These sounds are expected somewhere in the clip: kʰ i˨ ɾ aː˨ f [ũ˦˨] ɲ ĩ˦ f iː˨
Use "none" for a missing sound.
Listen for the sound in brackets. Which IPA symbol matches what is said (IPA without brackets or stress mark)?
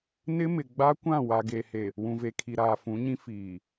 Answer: ũ˨˦